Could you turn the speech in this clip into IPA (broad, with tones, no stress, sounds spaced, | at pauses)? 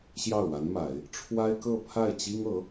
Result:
ɕ j ɑ˥˩ ʊ̯ w a˧˥ n m a˨˩˦ ɪ̯ | ʈ͡ʂʰ w a˥ ɪ̯ k ɤ˥˧ pʰ a˥˩ ɪ̯ t͡ɕ i˥ ŋ ɤ˧˥